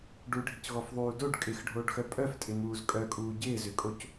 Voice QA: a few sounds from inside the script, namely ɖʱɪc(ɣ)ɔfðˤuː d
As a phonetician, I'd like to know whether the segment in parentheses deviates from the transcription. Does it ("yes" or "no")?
no